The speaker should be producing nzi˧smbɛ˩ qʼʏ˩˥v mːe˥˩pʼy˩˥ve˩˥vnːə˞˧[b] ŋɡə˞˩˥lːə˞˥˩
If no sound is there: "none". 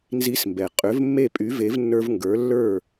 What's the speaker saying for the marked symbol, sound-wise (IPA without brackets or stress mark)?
v